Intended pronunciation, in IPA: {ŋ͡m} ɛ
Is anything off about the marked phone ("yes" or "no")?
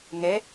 yes